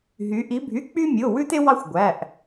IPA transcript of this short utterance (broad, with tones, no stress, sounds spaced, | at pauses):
ɦ y˩˧ ʔ i˩˧ bʱ y˩˧˩ k͡p y˦ mʲ o˩˧˩ w ʉ˦ t e˦ w ɑ˦ xʷ ɡʷ æ˩˧˩ ʔ